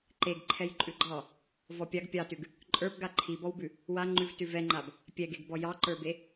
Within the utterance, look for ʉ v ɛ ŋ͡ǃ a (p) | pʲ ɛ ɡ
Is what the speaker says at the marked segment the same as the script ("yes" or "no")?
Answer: no